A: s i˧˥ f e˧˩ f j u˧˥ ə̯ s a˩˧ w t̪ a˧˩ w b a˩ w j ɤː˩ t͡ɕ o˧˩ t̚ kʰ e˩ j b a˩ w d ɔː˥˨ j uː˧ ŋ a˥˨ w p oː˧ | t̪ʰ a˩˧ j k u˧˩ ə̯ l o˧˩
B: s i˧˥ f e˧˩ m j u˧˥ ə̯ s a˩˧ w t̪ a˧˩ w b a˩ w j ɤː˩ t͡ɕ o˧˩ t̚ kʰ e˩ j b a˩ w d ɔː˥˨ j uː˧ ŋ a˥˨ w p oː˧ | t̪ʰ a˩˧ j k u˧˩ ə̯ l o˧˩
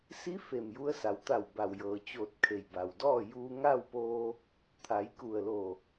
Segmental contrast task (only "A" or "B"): B